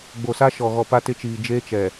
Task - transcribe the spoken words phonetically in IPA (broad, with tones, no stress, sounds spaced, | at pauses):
ɡ͡b o˨ s a˦ ʃ ɔ˨ ɣ ɔ˨ p a˦ t ɪ˦ t͡ʃ iː˨ d͡ʒ eː˦ t͡ʃ ɛ˨